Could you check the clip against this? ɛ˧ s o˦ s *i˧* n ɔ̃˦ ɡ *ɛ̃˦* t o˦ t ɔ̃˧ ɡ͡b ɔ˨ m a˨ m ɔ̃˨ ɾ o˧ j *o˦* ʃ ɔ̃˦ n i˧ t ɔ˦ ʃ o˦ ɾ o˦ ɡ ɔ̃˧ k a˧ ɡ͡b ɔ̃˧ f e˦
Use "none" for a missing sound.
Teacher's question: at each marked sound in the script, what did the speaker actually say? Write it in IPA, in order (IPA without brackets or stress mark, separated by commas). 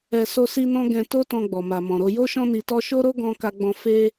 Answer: i˦, ɛ̃˧, o˦